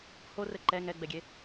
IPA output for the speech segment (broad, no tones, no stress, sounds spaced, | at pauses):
h o r ɘ ǃ ɛ ŋ ɛ ɡ͡b ɛ ɡʲ e